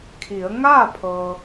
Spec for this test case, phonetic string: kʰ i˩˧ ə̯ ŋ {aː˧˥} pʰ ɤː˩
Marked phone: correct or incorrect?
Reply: incorrect